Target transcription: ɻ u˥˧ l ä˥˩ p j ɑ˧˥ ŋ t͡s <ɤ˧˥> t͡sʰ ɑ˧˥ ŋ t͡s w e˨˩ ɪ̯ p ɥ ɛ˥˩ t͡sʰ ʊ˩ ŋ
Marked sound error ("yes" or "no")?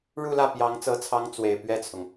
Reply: no